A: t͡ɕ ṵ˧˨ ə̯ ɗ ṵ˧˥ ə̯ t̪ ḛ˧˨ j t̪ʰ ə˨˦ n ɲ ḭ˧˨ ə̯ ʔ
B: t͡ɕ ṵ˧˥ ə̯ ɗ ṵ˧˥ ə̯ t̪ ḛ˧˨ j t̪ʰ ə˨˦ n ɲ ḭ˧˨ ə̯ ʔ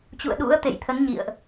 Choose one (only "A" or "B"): A